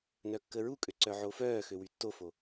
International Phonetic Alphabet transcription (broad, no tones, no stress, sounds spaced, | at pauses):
n œ kː ə ɹ u kʼ ø ǀ œ ʕ o f œː x ø w y tː o f o